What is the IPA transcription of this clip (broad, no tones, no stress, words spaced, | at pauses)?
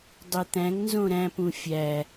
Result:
dˤit̪æ̃ŋnzõ ɾæ̃pũ fʲæ